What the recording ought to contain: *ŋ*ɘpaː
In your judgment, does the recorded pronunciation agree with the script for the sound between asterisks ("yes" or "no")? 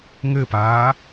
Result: yes